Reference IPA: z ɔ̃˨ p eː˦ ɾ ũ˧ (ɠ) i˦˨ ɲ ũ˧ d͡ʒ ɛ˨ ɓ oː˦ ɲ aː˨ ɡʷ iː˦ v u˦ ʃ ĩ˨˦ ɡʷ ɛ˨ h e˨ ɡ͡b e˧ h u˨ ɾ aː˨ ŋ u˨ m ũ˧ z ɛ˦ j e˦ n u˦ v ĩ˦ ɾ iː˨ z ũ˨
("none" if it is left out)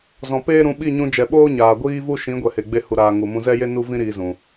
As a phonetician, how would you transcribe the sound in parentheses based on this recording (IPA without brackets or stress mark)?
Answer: ɓ